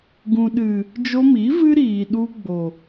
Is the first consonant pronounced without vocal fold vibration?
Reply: no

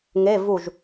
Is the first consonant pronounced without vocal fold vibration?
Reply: no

